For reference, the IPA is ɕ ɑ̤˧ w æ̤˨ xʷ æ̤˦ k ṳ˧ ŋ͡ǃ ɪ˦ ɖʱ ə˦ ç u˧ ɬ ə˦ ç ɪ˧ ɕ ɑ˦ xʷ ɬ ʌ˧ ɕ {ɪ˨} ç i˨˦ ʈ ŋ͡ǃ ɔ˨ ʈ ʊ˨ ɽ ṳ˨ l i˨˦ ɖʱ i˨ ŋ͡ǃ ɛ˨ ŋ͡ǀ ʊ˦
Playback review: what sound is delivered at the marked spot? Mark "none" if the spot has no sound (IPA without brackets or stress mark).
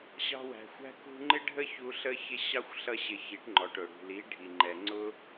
ɪ˨